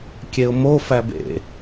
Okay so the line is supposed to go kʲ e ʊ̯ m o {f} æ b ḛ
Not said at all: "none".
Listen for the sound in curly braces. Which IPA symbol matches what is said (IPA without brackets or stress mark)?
f